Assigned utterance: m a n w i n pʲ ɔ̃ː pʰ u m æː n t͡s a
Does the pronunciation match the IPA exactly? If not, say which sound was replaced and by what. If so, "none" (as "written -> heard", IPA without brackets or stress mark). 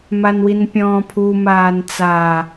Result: æː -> aː